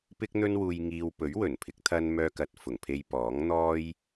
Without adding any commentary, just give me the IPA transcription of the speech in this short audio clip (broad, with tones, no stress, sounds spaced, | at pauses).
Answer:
p ɪ˥ k̚ n̪ ɵ˥ n w uː˧ j ŋ iː˧ w p ɵ˨˥ ɥ w ɵ˨˩ n pʰ ɪ˨˥ k̚ t̪ʰ ɐ˧ n m œː˧ k ɐ˨ t̚ f ʊ˨˩ ŋ pʰ e˧ j p ɔː˨˥ ŋ n̪ ɔː˥ j